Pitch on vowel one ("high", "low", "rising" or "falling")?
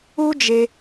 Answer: high